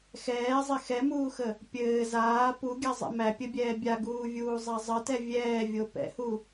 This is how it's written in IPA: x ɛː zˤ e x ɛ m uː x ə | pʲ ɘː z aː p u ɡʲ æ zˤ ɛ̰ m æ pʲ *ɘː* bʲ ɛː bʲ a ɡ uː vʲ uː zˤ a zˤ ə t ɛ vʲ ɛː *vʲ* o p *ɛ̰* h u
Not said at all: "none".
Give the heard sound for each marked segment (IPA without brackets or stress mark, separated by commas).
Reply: ɘ, vʲ, ɛ̰